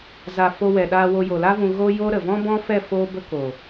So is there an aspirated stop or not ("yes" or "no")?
no